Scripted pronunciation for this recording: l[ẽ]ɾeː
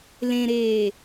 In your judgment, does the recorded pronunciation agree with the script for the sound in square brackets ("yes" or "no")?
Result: yes